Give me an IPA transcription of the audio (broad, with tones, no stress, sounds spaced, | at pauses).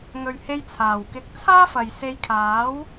ŋ ɵ˨ ɥ h e˧ j t͡sʰ aː˨˩ w k ɪ˧ k̚ t͡sʰ aː˥ f ɐ˨ j s e˧ j kʰ aː˨˥ w